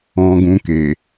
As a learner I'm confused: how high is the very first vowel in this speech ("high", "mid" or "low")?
mid